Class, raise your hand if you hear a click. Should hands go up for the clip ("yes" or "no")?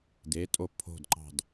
yes